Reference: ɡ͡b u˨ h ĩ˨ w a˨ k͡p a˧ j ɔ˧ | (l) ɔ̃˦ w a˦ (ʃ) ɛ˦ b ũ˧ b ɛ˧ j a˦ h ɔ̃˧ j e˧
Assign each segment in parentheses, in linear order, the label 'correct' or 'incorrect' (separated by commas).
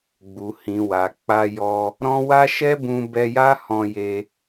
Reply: incorrect, correct